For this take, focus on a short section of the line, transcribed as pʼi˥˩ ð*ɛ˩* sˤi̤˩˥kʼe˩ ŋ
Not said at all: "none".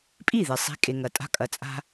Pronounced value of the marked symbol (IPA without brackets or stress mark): e˩